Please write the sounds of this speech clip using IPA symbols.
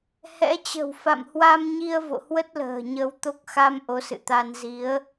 hɛ̰˧˥t͡ɕə̤˨˩w fa̰˧˨mhwa˧m ɲi˧ə̯ vo̰˧˨hwə˦˥t̚lə̤ː˨˩ ɲə˧wt̪o˦˥k̚ xa˧m ʔo˨˦sɨ̰˧˨t̪a˧n zi˨˦ə̯

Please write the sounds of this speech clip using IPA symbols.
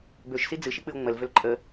bøʃsi d͡zɨʃik͡pɨo̯ ŋ͡məlvøl ǃʼə

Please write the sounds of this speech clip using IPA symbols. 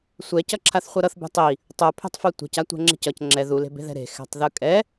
sʷɛcʌǁʰaθ χʷʌɾʌθ bɛ̤tˤi | tˤopʰe̤tˤfo tʷe̤ca tʷɛ̤ŋ͡ǁe̤cʌc ŋ͡ǁɛ ðule̤be̤ðɛ̤ ɾe̤ xɛ̤tˤðɯkʼɛ

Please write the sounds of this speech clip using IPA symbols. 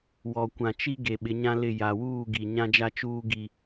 wɔ˨kʷã˨t͡ʃi˦ ɡe˨ɓɪ˨˦ɲã˦ lɪ˦˨ ja˨wuː˦˨ɡi˨ ɲã˦d͡ʒa˦t͡ʃuː˦ ɡi˦

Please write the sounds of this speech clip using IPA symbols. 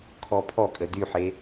kʰɔpʰɔkʼə dyħe

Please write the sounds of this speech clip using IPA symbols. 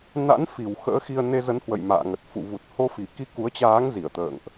na̰˧˥nfi˨˩w xə̰ː˧˥xi˧ə̯ ne˧zə˨˦nhwə̰˧˨j ma̰ː˧˨ŋə˨˩t̚ fṵ˧˨ vu˨˩t̚ho˧fi˧˩ki˧ ku˨˦ə̯t͡ɕaː˨˦ŋzi˧˩ə̯t̪ə̰ː˧˨ŋʔ

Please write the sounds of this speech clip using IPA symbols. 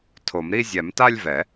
tʰo˨˩˦mɾi˥˧ zʲɛ˨˩˦mta˥˧lʲvɛ˨˩˦

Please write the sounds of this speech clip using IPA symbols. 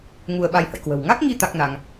ŋu˧ə̯ɓa˧jhə̰˧˨jkwə̤˨˩w ŋa˦˥k̚ŋi˧ t̪a˦˥k̚na˧ŋ

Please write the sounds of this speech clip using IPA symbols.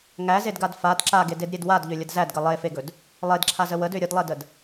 ŋæzedɡad fad ǁaɡededɾʲed wadʎølʲəd zædɡə lˠefeɡɵd | lˠedǁʰazə wədø ɾʲədlˠedəd

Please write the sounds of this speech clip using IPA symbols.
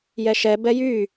jɛʃɛ bɛjy

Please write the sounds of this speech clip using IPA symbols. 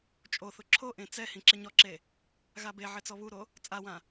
t͡ʃʼoθʊ ǁʰoʔẽ t͡sɛ hĩǁɪɲɔǁe | ɣabeʕɪ t͡sɔβuɾo | t͡sʼawã

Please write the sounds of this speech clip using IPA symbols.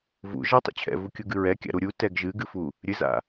vṵ ʒa tˤṵt͡ɕʰɛ̰vukʲu ɡɨɹɛkʲa̰ ɾuɾʲu tɛɡʒɨɡɨfu | ɾʲɨza̰

